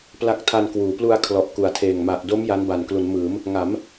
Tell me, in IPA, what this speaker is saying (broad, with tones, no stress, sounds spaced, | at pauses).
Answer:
p l a˦˥ k̚ tʰ a˧ n k w uː˩˦ p l u˧ a̯ kʰ l ɔ˨˩ ʔ k u˨˩ a̯ tʰ eː˨˩ ŋ m a˨˩ ʔ d o˦˥ m j a˦˥ n b a˨˩ n k l u˩˦ n m ɯː˩˦ m | ŋ a˩˦ m